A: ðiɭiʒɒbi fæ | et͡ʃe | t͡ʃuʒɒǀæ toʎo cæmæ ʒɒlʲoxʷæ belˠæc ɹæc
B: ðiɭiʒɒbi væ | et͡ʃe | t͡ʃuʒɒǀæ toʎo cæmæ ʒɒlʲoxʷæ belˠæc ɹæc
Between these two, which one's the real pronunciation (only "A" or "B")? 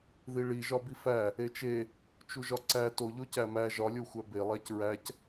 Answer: A